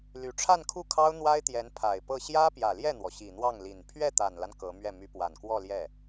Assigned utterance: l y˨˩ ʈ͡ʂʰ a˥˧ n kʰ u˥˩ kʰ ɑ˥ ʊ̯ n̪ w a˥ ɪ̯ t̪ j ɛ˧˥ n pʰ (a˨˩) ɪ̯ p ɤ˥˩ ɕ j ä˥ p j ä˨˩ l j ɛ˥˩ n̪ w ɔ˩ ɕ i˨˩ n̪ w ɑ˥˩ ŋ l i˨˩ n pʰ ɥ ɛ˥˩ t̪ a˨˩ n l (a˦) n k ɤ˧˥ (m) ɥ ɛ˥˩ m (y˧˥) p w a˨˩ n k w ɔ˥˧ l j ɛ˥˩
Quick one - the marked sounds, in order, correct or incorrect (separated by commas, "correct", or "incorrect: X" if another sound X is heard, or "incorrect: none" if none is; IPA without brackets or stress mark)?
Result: correct, correct, correct, correct